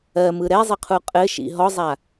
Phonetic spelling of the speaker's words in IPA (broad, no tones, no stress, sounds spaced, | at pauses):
ɜ m ɯ ɾ ɛ zˤ ɘ qʰ u qʼ ɘ ʃ ḭ ɦ ɔ zˤ a